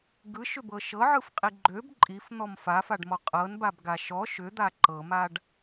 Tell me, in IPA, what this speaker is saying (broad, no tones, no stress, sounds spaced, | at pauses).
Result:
ɡ ɯ ʃ ʏ b ɤ ʃ ɤ ʕ ɯ f qʼ i ɡ͡ǃ ø b ǃʼ i f n̪ ɔ m f a f a ɖ m ɔ qʼ ɤ n b a b ɡ a ʃ ɔ ʃ ʏ d̪ a ǃ ɤ m a ɖ